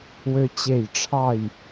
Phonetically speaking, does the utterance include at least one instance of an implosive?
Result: no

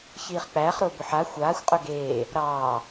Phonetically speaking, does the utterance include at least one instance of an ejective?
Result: yes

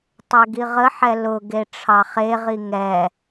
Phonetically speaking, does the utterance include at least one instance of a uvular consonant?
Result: yes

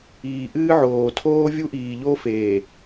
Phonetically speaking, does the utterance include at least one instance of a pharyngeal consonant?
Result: yes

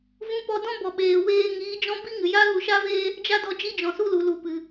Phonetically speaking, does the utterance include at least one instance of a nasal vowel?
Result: yes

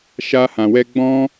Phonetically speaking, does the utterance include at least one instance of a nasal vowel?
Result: yes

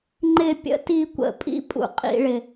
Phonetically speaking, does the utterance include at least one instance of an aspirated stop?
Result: no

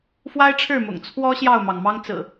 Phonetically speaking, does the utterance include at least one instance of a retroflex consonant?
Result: yes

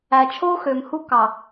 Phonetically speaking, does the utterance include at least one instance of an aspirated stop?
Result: yes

